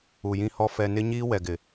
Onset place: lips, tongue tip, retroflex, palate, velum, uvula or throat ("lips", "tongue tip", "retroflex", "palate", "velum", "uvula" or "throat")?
palate